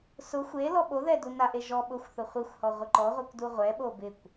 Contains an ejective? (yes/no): no